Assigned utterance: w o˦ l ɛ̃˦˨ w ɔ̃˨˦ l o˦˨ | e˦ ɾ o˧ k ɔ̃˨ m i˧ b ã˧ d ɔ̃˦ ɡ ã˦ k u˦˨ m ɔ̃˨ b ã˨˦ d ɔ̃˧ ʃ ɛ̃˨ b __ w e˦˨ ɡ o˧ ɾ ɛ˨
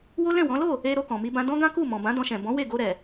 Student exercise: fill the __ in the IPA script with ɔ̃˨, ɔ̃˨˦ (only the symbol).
ɔ̃˨˦